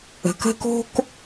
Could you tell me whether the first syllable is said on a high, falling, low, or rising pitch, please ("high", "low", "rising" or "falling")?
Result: low